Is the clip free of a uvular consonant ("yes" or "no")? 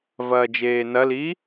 yes